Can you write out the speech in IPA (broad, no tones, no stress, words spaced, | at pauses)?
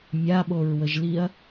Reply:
mʲaɓoɹwəʒliɐ̯